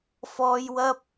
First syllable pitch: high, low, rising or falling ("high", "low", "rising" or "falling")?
high